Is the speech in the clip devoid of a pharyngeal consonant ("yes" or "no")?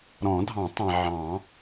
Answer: no